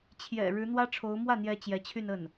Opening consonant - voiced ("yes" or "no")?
no